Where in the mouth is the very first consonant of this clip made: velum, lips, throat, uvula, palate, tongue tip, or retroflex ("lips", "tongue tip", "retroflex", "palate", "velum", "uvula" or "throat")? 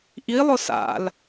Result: throat